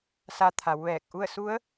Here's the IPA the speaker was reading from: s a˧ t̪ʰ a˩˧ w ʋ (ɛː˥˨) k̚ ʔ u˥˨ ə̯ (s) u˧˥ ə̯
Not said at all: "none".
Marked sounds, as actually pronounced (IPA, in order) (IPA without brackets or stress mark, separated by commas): ɛː˧˩, s